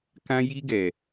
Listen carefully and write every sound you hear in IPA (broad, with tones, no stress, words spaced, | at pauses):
kã˧ji˧ɡɛ˨